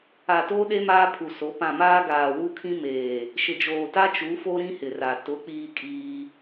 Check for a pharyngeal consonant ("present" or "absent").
absent